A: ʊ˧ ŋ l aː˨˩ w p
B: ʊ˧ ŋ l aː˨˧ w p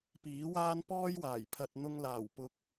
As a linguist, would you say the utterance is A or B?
A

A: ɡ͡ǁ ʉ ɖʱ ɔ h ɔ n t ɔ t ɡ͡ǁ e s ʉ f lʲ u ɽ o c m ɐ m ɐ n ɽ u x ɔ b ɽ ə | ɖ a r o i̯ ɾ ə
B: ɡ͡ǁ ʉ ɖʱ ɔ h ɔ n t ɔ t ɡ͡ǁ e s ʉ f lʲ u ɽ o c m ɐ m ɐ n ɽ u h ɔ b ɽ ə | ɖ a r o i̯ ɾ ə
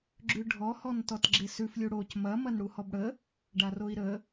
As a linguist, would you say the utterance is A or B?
B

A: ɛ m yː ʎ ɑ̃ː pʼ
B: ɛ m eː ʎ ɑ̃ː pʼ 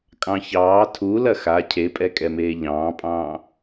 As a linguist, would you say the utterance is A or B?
B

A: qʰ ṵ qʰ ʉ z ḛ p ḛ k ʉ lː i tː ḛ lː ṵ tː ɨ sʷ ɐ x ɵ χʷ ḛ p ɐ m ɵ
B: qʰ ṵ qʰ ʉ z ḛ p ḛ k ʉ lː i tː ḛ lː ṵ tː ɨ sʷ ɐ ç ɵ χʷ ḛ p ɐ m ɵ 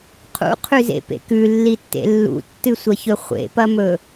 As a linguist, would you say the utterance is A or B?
B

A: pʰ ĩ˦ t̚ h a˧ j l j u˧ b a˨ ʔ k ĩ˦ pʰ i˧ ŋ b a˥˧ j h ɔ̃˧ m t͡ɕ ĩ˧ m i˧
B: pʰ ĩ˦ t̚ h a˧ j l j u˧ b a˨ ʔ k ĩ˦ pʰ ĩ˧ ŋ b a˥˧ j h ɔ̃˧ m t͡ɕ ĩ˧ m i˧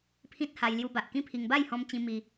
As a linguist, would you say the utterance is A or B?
A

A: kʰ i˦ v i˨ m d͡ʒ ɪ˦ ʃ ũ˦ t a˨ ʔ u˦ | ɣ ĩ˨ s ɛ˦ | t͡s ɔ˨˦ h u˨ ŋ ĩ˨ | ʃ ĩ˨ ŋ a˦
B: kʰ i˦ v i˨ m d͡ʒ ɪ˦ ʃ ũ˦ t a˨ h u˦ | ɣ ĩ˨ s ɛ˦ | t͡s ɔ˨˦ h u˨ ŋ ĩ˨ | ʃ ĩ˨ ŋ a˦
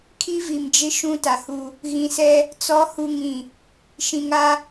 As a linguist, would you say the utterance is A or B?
B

